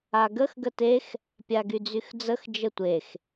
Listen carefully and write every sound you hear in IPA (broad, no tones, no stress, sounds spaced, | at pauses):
a ɡ ə x ɡ ə t e x | pʲ a ɡ y d͡z y x d͡z ə x d͡ʒ ə tʷ e x